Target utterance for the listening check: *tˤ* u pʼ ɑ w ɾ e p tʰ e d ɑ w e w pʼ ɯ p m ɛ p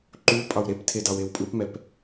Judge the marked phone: incorrect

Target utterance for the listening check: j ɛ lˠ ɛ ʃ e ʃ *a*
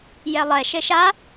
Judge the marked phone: correct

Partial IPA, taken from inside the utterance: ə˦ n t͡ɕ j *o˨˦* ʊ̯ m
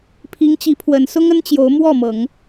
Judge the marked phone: correct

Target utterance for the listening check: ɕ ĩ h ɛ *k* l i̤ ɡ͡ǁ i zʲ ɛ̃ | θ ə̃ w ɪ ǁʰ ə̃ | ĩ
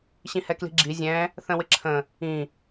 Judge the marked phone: correct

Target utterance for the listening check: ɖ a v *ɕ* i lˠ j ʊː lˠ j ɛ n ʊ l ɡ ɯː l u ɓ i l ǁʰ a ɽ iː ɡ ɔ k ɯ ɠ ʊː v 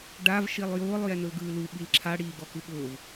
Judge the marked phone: incorrect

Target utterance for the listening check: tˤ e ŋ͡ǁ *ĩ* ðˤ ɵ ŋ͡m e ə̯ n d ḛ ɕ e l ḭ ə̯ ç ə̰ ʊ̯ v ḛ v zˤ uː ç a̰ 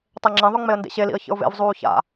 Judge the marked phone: correct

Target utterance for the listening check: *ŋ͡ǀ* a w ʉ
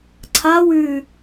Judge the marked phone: incorrect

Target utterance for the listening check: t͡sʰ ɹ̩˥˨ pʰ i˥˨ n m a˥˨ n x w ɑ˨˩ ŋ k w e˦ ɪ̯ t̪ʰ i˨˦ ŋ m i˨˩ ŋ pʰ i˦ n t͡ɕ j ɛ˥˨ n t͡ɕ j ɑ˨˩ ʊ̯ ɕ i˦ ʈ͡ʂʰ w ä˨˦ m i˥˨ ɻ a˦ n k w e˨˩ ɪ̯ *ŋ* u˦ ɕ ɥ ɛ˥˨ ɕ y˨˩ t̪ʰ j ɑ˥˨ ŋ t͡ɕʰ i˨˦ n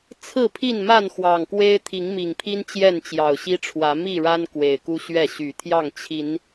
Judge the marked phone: incorrect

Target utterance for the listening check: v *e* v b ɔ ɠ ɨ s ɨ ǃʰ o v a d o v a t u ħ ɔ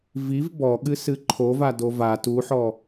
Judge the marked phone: incorrect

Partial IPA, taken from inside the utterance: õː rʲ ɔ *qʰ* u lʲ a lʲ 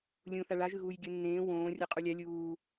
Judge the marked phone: incorrect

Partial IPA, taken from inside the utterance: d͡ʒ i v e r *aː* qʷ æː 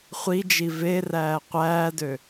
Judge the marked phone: incorrect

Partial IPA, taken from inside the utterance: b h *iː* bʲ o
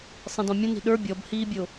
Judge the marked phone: correct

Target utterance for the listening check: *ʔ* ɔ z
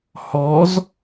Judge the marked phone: incorrect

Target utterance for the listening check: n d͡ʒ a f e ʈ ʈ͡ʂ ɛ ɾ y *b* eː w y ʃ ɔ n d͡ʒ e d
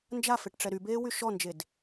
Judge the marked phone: correct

